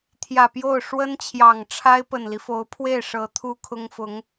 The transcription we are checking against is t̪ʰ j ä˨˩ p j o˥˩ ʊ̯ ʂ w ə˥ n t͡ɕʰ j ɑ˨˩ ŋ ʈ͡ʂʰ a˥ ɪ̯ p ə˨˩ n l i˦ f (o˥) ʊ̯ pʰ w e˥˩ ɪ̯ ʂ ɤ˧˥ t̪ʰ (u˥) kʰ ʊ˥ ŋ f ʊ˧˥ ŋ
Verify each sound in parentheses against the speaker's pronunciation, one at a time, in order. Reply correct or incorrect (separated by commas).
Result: incorrect, correct